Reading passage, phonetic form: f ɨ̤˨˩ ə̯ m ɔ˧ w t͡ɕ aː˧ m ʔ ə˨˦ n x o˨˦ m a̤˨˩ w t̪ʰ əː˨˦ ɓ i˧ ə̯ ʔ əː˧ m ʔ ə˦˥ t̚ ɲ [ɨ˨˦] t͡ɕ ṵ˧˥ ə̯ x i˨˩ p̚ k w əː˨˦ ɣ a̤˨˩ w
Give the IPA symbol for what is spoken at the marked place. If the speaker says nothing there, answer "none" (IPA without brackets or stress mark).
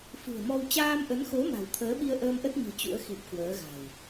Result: ɨ̤˨˩